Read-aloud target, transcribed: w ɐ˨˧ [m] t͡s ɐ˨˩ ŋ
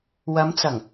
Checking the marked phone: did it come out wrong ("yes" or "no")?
no